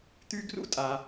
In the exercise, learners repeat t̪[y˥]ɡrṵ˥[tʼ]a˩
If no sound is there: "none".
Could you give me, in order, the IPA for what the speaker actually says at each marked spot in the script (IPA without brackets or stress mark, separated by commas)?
y˥, tʼ